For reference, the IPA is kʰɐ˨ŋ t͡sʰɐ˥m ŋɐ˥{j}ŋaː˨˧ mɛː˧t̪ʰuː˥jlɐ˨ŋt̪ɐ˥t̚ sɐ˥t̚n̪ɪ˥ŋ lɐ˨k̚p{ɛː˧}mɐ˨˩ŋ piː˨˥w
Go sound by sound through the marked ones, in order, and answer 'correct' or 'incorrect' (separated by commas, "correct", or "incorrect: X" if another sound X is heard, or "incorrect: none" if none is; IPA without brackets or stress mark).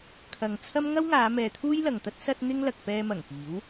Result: incorrect: w, correct